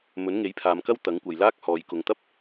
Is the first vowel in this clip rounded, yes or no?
yes